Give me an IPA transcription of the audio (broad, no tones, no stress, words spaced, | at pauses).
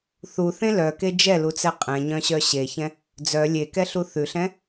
θuθẽ lœke d͡ʒɛlut͡sɛ qʼɛ̃ɲœ̃ɕœ ɕeçɛ̃ | d͡zœ lʲekɛɬu θʉɬɛ̃